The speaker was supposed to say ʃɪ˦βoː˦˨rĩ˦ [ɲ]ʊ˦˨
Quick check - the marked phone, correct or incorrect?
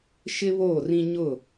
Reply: correct